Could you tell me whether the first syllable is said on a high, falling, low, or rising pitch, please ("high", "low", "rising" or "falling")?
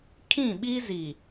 falling